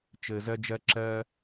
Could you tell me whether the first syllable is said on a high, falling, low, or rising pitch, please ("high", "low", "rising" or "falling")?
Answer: low